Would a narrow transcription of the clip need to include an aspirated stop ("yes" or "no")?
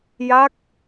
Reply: no